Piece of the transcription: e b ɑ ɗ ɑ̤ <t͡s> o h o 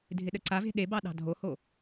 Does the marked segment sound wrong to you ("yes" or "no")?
yes